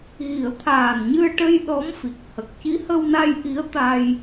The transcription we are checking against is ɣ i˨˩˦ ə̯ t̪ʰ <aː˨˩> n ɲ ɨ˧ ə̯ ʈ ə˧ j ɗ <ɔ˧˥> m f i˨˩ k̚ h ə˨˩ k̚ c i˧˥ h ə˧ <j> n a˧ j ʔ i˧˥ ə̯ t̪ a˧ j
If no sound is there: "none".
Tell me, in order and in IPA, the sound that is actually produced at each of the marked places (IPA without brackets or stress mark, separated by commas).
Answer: aː˨˩, ɔ˧˥, w